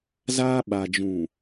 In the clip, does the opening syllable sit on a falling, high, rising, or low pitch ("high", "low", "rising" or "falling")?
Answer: high